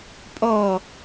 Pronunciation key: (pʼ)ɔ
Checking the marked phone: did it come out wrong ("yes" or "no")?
no